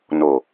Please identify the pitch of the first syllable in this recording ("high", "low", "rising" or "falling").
low